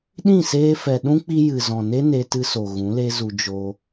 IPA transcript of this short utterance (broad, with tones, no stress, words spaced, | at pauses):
ɗĩ˦˨seː˧fɛ˨ ɗũ˦k͡pi˧ jɨ˨zɔ̃˨ne˦ ne˧ tɨ˧so˨ ɣũ˨˦le˦zu˧ d͡ʒo˧